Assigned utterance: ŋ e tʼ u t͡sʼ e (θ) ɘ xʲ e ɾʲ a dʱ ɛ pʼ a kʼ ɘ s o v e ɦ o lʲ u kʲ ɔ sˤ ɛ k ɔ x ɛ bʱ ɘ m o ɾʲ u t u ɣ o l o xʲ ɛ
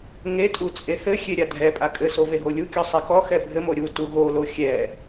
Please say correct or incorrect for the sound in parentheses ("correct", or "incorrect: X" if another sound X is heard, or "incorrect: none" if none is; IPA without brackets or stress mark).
correct